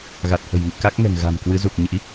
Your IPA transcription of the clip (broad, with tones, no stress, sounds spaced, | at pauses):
ɣ a˨˩ t̚ h ə̤˨˩ j ŋ ḭ˧˨ k a˦˥ k̚ ŋ ɛ̤˨˩ ŋ ɣ a̤˨˩ m k w ɨ˨˦ z u˨˩ k̚ ɲ ḭ˧˥